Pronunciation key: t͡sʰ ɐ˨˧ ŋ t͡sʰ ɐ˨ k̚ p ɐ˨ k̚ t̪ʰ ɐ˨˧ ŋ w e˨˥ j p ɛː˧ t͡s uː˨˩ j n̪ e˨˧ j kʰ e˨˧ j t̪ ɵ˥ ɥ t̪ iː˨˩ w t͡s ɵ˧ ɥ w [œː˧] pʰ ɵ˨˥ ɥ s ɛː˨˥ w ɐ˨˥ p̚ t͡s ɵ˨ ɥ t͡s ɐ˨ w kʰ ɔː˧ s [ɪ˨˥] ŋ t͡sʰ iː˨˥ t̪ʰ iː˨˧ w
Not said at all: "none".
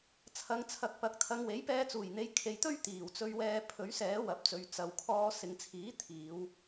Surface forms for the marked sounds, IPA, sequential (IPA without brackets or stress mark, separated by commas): ɛː˧, ɪ˨